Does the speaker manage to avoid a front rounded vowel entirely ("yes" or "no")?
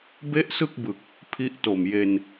yes